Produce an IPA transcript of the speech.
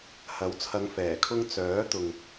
h ɐ˨˥ w t͡sʰ ɐ˨˧ ŋ f ɛː˨˩ kʰ ʊ˧ ŋ t͡s œː˨˥ t̪ ʊ˨ ŋ

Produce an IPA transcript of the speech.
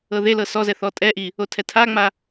ɤ ð e l ɤ s ɔ z ɛ θ ɔ tʼ ɛ ʔ i | o tʰ ɛ tʰ a ŋ͡m a

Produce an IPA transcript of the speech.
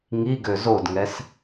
ŋ i ɡ ø z o d ŋ ɛ s

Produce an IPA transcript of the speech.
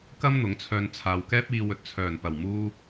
k ɐ˥ m n̪ ʊ˨˥ ŋ t͡sʰ œː˧ n t͡sʰ aː˨ w k ɛː˥ p̚ iː˧ w ɵ˨ t̚ t͡sʰ œː˨˩ n p ɐ˨˩ w m uː˥

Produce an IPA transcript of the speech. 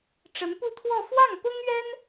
ʈ͡ʂ ə˧˥ n p u˥˧ t̪ʰ w ɔ˥˧ f w ɑ˥˩ ŋ p ʊ˥ ŋ ɥ ɛ˥ n

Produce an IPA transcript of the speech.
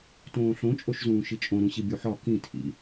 t õː ɬ õ t͡ʃʼ o ʃ z ũː ʃ i t͡ʃʼ õ ɾ ũ ɕ i bʲ u ħ ɒ k ĩ tʰ ḭ

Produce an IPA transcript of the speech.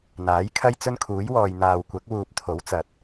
n̪ aː˨˥ j kʰ ɐ˥ j t͡s ɵ˥ n kʰ uː˨˥ j w ɔː˨ j n̪ aː˨ w kʷ ɐ˨˥ k̚ w uː˨ p̚ t̪ʰ o˨˥ w t͡s ɐ˨˥ t̚

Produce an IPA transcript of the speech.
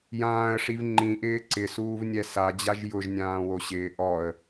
j ãː ə̯ ʂ i v ŋ͡ǃ ĩ ʔ ɪː ǀ ɪ s uː v nʲ ɛ s a d͡ʑ a ʒ j ʊ ʒ nʲ ãː w o ɕ ɪː ʔ ɔ ə̯

